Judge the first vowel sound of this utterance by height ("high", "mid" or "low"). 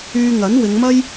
high